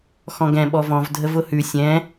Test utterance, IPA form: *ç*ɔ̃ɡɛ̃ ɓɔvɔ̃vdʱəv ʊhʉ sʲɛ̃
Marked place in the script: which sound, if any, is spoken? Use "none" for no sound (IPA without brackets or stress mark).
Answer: x